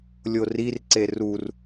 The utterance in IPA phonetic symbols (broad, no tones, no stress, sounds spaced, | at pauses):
lʲ o r i r ǀ e r u r